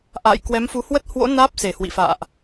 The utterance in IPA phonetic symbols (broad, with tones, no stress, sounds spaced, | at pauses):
ʔ a̰ː˧˨ j k w ɛ˨˦ m f u˨˦ h w ə˦˥ t̚ h w o̰˧˥ n aː˦˥ p̚ s e˧˩ h w ḭ˧˨ f a̰ː˧˨ ʔ